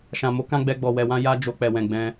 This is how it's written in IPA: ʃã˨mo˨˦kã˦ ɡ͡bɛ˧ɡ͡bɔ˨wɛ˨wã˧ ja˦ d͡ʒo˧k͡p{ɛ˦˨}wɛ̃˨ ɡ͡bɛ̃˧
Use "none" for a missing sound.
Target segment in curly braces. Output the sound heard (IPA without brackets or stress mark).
ɛ˨